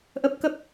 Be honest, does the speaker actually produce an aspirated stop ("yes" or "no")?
no